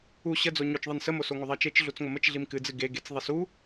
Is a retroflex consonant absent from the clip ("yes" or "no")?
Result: yes